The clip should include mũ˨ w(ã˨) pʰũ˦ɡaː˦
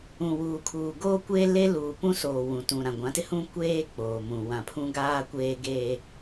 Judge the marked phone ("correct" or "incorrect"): correct